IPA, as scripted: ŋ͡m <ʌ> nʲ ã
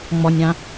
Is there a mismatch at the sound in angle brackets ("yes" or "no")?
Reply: yes